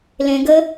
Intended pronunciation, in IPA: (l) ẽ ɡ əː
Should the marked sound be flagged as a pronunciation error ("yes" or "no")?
no